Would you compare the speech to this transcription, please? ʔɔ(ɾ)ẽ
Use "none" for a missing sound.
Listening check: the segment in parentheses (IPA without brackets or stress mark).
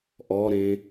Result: ɾ